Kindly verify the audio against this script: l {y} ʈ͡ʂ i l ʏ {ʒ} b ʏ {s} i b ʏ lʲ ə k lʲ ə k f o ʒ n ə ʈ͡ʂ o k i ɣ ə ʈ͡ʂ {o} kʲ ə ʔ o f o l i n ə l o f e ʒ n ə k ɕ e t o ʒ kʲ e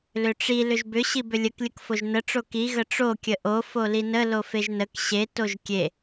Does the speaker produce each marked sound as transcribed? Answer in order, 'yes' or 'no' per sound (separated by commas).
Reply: no, yes, no, yes